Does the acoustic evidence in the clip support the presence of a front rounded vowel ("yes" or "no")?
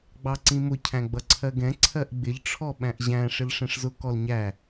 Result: no